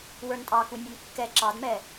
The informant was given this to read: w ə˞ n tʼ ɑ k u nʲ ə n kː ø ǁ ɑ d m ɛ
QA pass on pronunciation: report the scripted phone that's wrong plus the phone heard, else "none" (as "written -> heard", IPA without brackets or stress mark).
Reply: ø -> ɛ